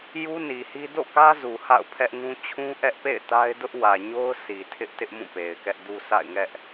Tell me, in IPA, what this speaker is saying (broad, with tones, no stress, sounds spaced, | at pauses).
j u˦ n i˨ h i˦ d o̰˦˨ k ä˦ z u˨ h a̰˦˨ ʊ̯ pʰ ɛ˦ ʔ ŋ ũ˦ t͡ɕʰ ũ˦ ʔ ɛ˦ ʔ p ḛ˦˨ ɪ̯ t a˦ ɪ̯ d ʊ˦ ʔ w ä˨ ɲ o˦ ʊ̯ sʰ i˨ tʰ ɪ˦ ʔ t ɪ˦ ʔ m ũ˦˨ p e˨ ɪ̯ k ɛ˦ ʔ d u˦ sʰ a̰˦˨ ɪ̯ ŋ ɛ˦ ʔ